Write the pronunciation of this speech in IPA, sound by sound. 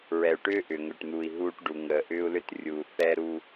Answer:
ɹ ɛ˨ u̯ ʈ ʏː˦ ʔ ʏː˨ ŋ ʏː˨ ʈ n̪ uː˨ i̯ ɦ uː˦ ʈ ɖ u˨ ŋ əː˨ ʔ ʏː˦ u̯ l ʏ˦ t rʲ uː˨ θ ɛ˦ ɾ uː˦

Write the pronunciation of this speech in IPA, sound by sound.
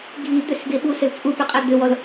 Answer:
ɡʱ i d̪ ʏ s ɡ e ɓ u s ɘ l t͡sʼ u p ʏ qʼ ɘ d̪ ʏ w ɔ l

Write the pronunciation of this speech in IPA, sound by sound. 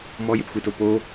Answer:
m ɔ j e p xʷ e t o p o

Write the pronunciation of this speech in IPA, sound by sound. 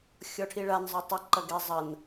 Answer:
xʲ ɔ ʈʰ i ɭ a n zˤ œ tˤ ɐ ǃ ɐ ɡ ɛ zˤ ɐ n

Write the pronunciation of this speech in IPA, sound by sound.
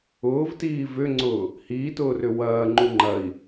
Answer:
ʊː v t iː v ʏ ŋ͡ǀ ʊː | h iː t ʊː r ʏ w ɐː ŋ͡ǃ u ŋ͡ǃ ɐ i̯

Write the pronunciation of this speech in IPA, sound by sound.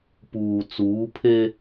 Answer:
p uː˨ t͡s uː˨˦ pʰ e˦

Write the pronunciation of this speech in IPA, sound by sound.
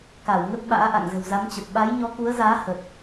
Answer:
k a˧˩ w ŋ ə˦˥ t̚ ɓ a̰ː˧˥ ʔ a̰˧˨ ŋ z ə̤˨˩ w z a˨˦ m t͡ɕ ə˨˩ p̚ ɓ a˨˦ j ɲ ɔ˨˦ k u˨˦ ə̯ z aː˨˦ h ə˨˩ t̚

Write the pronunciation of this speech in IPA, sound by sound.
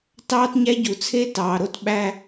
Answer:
t ɑː˥ t ɲ æ˥ ɟ u˩ t͡sʰ e˥ t ɑː˩ ɾ o˥ t ɓ æ˥

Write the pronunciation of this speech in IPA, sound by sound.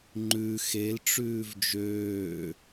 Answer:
ŋ͡ǃ ʉ x e l ʈ͡ʂ ʉː v d͡ʒ øː

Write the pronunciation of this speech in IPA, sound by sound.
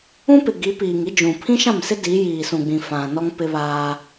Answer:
ũ˦ p ɪ˨ ɡ i˨˦ p iː˨ ŋ i˦ d͡ʒ ũ˨ pʰ ĩ˦ ʃ ã˦˨ m s ɪ˦ d i˨˦ j iː˨ s ũ˨ ɡ͡b ĩ˨ f ã˨ n ɔ˦ ŋ p ɪ˦ β aː˦

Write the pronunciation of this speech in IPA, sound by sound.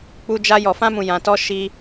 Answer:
k͡p u˧ d͡ʒ a˧ j ɔ˨ f ã˧ m ũ˨ j ã˨ t ɔ˧ ʃ i˧

